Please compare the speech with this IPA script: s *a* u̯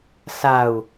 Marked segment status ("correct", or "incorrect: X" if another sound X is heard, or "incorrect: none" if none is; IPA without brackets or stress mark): correct